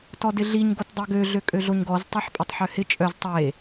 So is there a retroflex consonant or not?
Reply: no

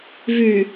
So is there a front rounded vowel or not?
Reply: yes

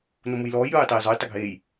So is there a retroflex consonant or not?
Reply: no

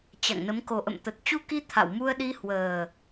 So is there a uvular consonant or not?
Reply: no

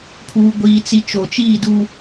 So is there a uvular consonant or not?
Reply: no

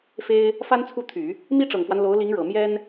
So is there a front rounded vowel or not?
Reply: yes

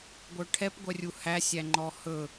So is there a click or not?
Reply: yes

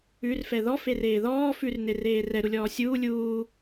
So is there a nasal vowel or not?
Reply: no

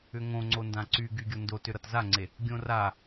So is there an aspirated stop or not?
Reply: no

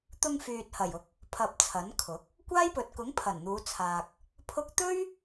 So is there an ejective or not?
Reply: no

